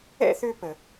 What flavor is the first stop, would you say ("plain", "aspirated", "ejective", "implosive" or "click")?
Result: plain